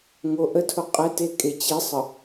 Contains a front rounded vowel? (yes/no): no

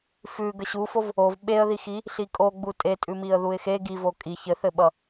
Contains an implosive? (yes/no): yes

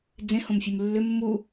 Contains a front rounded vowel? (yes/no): yes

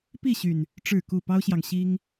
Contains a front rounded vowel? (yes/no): yes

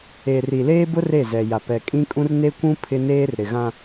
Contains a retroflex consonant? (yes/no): no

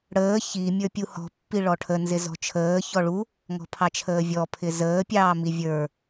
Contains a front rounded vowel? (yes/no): no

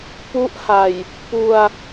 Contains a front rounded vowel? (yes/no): no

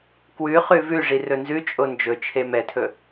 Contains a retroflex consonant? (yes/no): yes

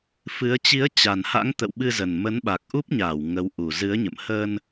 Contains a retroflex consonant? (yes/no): no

